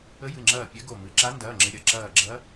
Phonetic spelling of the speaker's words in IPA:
ə˧˥ j ɨ˩˧˩ ŋ͡ǁ ɐː˧˩ pʲ ɛ˧˥ ɡ o˧˩ m ɨ˩˧˩ ǁ a˧˥ n d ɐː˩˧˩ ŋ͡ǁ ɪ˩˧˩ ɾʲ ɐ˩˧˩ ǁ ɐː˧˩ ɡ͡ǁ ɐ˧˥

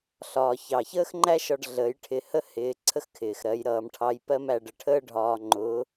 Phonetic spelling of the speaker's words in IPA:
ɬ ɒː˩ ç ɑ˩ ç əː˥ x ŋ͡ǃ æ˥ ʃ ɒ˧ ɖ ɮ əː˩˧ j ʈʰ ɪ˩˧ h ə˥ h ɪː˩˧ ǀʰ ə˥ x kʰ ɪː˩ x ɾ ɜ˩˧ j ɾ ʌː˩˧ m ʈʰ ɑ˧˥ j p ɜ˥ m æ˧ ɖ ə˧ ʈʰ əː˥ ɖʱ ɒː˧ ŋ͡ǃ ʊː˧˥

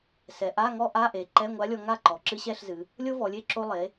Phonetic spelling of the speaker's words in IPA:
s ɛ˩˧ ʔ a˧˥˧ ŋ ɔ˥ ʔ a˧˥˧ ʔ e˩˧ ǃ ɛ˧˥˧ ŋʷ a˧˥ lʲ ɔ˧ ŋ a˥˩ ǃ ɔ˩˧ ǁ ɨ˧˥ ɕ ɛ˧˥˧ ɬ z ɨ˩˧ | lʲ o˥ v ɔ˩˧ lʲ e˥˩ ǁ o˧ lˠ e˩˧

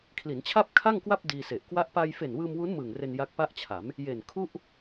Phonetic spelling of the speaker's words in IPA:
kʰ l i˩˦ n t͡ɕʰ a˥˩ p̚ kʰ a˥˩ ŋ k w a˥˩ p̚ d iː˧ s e˨˩ ʔ k w a˥˩ ʔ p a˧ j f e˨˩ n w ɯː˧ m w u˦˥ n m ɯː˨˩ ŋ r e˧ n j a˦˥ k̚ p a˥˩ ʔ t͡ɕʰ a˩˦ m | j e˨˩ n kʰ u˥˩ ʔ

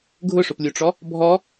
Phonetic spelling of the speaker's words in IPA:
ɡʱ ʊ ʂ ʊ p lʲ u ʈ͡ʂ ɔ | bʱ ɔ

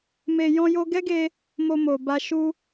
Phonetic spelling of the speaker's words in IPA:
m e˧ j ɔ̃˦ j o˦ ɡ ɛ˦ ɡ e˧ | m o˧ m o˨ b a˧ ʃ u˧

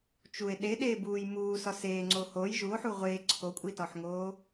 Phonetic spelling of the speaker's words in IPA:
t͡ʃ u e̯ ɗ e ɗ eː b uː j m uː s ɒ s eː ŋ͡ǀ o h o j ʒ u o̯ ħ u ʁʷ eː ǀʰ o kʷʼ i t ɒ ħ ŋ oː

